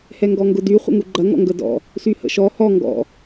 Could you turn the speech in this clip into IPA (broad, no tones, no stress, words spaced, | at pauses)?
hɛŋɡɔŋɡʊdy χʷə̰ŋuɡ͡ǃɐ ŋɔ̰ŋɡədɔ̰ | syhə̰ʃɔ hɔ ŋɡɔ̰